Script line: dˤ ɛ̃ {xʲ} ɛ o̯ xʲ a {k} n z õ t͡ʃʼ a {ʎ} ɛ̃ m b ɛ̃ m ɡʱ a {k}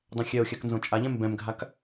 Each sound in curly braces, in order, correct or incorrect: correct, correct, correct, correct

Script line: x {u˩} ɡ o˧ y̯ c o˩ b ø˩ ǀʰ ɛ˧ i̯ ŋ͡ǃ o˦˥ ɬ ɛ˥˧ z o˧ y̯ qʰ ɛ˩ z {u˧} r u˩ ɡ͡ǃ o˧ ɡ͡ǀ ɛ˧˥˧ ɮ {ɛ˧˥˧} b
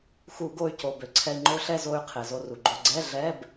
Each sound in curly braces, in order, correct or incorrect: incorrect: u˧˩˧, incorrect: o˧, correct

